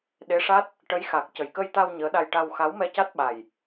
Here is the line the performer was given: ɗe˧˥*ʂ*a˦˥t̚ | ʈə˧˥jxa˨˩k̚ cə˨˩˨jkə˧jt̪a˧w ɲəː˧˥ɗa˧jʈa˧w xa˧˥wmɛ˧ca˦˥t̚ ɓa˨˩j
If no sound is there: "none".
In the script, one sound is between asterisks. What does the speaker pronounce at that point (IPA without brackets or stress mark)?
ʂ